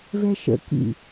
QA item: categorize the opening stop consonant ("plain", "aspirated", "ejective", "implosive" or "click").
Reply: plain